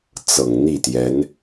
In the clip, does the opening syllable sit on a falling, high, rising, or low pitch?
low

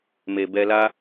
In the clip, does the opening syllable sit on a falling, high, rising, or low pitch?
low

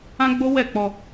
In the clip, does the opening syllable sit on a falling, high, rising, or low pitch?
high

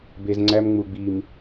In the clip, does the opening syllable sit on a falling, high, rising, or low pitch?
low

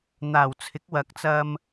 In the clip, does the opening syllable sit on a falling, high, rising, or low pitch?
low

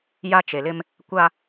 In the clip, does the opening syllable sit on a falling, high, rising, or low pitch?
high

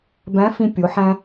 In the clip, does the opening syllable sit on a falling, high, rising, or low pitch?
rising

